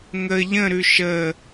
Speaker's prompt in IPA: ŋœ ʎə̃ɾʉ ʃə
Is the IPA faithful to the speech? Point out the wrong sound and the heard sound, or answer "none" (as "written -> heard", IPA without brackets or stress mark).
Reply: œ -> ə